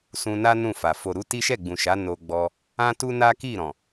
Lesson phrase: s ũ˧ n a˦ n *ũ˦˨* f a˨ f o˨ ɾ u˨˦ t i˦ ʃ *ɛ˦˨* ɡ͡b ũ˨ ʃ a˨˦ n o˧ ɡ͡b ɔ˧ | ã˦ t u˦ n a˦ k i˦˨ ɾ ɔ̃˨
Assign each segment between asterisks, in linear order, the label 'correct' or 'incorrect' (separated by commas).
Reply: correct, correct